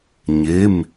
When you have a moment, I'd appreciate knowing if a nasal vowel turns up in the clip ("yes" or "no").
no